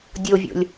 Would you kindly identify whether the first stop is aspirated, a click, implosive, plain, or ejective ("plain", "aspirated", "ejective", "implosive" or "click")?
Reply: plain